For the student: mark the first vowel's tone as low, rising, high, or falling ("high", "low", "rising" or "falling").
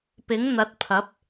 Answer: rising